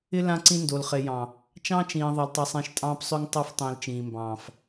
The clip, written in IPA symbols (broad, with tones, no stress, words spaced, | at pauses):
ɪ˦ lã˦ǀĩ˦ ndo˨lχe˨jɑ̃˨ | t͡ʃɑ̃ː˦t͡ʃĩː˨ ðˤa˨ltˤɑ˨sˤẽ˨˦ʃ tʼɑ̃ː˦psˤø˦ŋ tˤɑ˦f tˤĩː˨l t͡ʃĩː˨mbɑ̃ː˨f